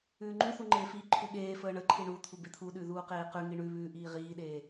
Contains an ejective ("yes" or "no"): no